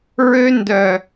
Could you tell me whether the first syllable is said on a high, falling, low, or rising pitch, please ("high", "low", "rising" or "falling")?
high